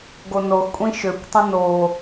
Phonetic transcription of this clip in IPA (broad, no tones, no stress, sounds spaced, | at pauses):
ɡ o n o x kʷʼ ĩ ʃ ø kʷ tˤ ĩ n o